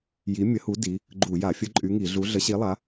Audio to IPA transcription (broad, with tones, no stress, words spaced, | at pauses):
ji˨˥mʲə˨˥hu˨˥ di˨˥ | ɡ͡ǃu˧˩˧ja˧˩˧ fʲə˨˥ ǃʼy˨˥ŋi˧˩˧ɮu˨˥ ɮə˨˥ɕi˨˥lˠa˨˥